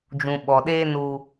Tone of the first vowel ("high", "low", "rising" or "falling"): low